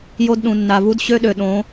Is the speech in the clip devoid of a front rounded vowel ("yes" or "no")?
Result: no